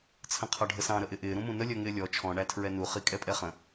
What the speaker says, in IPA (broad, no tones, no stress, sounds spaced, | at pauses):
t͡sʰ ə̃ qʰ ɒ ɖʱ ə s ɑ̃ ɾ ə ʔ ɪ ʔ ɪː ɾ ũ m ũ n ə lʲ ɜ ŋ ɪː lʲ ɔ t͡ʃʰ ɔ̃ ɳ æ tʰ ɹ ɛ n u χ i kʼ ɛ pʼ ɛ χ ə̃